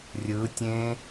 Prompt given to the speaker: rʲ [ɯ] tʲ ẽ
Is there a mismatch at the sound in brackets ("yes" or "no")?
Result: no